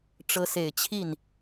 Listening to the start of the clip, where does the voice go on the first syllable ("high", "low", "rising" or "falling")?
rising